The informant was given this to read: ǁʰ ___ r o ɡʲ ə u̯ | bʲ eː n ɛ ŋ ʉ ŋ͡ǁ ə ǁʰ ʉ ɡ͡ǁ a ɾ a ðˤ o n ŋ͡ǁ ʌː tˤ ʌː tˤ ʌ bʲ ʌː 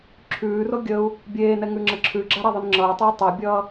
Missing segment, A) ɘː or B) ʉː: B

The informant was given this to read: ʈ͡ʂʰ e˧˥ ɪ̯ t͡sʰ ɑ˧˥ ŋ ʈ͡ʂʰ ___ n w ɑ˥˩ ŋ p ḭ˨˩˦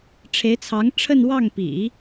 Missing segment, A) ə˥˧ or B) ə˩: A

